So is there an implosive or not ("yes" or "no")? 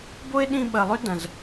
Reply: yes